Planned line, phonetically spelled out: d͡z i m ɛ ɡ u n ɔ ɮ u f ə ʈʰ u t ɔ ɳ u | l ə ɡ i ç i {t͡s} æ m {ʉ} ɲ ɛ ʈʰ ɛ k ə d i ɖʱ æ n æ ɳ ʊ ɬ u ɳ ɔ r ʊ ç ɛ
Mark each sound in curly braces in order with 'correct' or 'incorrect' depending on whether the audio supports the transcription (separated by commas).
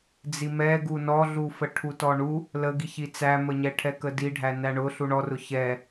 correct, incorrect